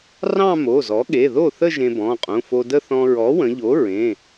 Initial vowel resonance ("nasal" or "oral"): nasal